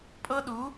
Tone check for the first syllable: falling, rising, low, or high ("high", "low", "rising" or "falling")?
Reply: high